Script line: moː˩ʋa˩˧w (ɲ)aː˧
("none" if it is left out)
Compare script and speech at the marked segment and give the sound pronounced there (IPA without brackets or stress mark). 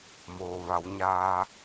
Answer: ɲ